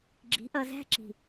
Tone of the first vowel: rising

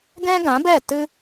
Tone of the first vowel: high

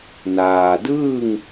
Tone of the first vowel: low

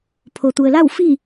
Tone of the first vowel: low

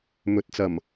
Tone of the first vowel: rising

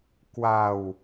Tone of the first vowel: low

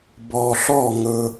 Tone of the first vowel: low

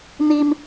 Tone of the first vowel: high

